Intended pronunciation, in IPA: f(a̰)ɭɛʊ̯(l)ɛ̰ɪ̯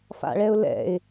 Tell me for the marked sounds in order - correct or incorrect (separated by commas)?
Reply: correct, correct